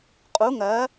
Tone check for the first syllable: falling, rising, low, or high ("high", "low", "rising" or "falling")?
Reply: rising